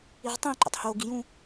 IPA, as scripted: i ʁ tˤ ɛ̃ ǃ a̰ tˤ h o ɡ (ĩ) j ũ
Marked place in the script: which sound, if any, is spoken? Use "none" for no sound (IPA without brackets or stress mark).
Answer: i